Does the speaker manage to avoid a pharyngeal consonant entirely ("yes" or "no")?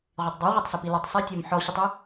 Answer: no